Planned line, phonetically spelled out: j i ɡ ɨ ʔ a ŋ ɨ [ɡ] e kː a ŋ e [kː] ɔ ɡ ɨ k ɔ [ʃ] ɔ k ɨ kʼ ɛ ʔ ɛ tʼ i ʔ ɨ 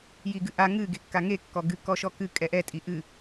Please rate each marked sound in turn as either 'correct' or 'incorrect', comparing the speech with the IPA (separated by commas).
correct, correct, correct